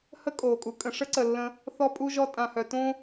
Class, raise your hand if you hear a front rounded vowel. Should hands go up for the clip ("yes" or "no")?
yes